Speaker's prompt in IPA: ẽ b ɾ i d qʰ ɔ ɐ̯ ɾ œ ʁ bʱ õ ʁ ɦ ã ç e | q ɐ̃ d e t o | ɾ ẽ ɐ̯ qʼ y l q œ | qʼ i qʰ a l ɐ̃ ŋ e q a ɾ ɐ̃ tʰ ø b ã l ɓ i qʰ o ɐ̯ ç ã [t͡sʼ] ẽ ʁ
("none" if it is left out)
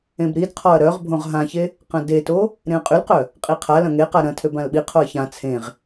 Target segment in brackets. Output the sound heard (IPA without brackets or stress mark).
t͡sʰ